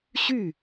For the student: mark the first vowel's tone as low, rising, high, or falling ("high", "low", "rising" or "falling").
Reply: falling